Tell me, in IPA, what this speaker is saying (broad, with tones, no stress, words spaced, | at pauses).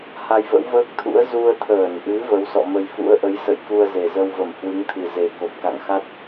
ha˧jvə̰˧˥wvəː˦˥k̚t̪ʰṵ˧˥ə̯ zu˧ə̯t̪ʰəː˧˩nʔɨ˨˦ və˨˦wsɔ̰˧˨mə˧j fṵ˧˥ə̯ʔə˨˦jsə̰˧˨j ku˧ə̯ze˨˩zə˧wvə˧˩m hwɨ˨˦ŋt̪ʰɨ˨˩ ze˨˩ko˨˩p̚ ka̰˧˨ŋxa˦˥t̚